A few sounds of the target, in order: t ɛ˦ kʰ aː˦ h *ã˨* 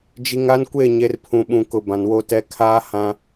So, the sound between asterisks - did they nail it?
no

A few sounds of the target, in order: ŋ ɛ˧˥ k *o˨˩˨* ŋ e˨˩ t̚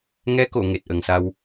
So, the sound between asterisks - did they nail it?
yes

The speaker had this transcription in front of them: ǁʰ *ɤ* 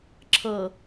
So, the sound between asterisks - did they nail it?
yes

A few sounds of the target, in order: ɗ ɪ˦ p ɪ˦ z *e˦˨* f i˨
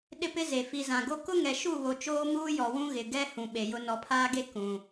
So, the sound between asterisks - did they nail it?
no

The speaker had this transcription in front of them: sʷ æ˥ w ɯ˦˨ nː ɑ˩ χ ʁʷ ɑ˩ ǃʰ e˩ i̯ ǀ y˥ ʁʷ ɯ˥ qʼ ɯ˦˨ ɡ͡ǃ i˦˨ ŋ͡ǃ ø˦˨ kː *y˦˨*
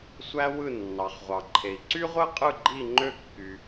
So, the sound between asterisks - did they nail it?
no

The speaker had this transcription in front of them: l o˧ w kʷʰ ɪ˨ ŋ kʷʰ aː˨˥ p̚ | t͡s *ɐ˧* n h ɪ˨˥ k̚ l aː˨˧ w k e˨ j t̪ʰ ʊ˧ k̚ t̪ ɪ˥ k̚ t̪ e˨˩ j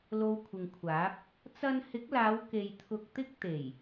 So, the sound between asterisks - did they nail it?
no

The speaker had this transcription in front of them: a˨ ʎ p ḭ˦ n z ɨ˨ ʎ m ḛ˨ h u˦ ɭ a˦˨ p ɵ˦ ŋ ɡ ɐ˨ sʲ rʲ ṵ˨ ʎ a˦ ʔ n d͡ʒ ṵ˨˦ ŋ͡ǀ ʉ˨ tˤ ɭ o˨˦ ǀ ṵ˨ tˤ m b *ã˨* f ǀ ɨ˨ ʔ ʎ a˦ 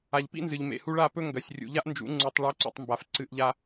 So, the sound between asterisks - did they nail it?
no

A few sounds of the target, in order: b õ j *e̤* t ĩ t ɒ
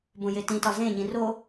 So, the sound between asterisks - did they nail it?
no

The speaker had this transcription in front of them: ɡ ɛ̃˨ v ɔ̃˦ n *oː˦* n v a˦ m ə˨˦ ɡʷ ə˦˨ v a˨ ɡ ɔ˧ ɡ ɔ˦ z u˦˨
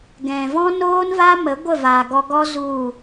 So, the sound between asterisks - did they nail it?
yes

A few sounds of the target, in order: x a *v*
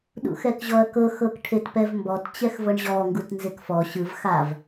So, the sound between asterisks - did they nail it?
yes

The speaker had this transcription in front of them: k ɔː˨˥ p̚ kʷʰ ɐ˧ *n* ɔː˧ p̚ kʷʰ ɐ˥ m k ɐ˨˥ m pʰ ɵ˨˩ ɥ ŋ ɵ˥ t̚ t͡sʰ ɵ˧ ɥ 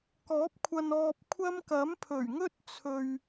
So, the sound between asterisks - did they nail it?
yes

